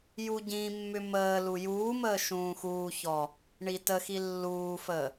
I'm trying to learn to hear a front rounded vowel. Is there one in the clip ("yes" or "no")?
yes